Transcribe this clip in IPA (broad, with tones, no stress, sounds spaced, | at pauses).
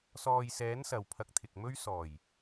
s ɔː˨ j s ɛː˨˥ n s ɐ˨ w pʰ ɐ˧ k̚ t̪ʰ ɪ˨ k̚ m ɵ˥ ɥ s ɔː˨˩ j